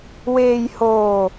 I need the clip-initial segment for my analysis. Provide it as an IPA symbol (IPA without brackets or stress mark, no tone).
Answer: w